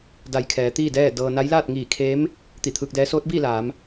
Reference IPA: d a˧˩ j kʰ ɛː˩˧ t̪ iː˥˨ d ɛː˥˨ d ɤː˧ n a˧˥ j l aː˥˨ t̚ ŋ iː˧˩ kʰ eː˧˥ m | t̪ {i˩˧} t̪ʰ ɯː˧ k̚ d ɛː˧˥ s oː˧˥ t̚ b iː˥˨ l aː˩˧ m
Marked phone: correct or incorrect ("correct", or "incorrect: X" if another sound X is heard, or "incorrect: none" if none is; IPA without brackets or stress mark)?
incorrect: i˧˩